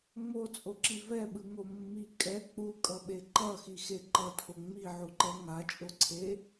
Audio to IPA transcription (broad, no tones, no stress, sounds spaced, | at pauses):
ŋ͡m o t͡sʼ o ǁ i v ɛ ɓ ɯ ŋ o mː i kʼ ɛ k͡p u kʼ ʌ ɓ e ǃ ʌ x i x e ǃ ʌ tʰ o ŋ͡m i ʕ u ǃ ɛ ŋ a t͡ʃʼ o ǀʰ e